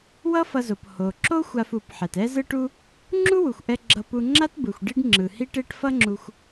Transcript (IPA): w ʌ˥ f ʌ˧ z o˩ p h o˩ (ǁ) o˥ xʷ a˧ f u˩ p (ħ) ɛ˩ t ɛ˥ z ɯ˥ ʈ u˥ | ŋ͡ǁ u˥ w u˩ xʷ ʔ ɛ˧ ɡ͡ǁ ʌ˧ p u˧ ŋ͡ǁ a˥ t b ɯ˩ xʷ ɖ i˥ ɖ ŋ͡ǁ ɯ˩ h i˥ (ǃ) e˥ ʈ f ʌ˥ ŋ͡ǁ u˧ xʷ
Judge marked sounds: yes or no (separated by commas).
yes, yes, no